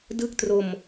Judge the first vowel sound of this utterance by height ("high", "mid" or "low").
high